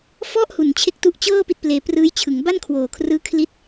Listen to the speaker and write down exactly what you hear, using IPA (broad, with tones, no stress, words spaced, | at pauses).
fɔ˥˩ʔhu˨˩n t͡ɕʰe˥˩k̚tu˥˩ʔ t͡ɕɤː˥˩ pi˥˩t̚pleː˧ prɯː˦˥jt͡ɕʰɯ˩˦ŋ ba˥˩nkʰwoː˨˩kʰrɯː˦˥kʰli˦˥t̚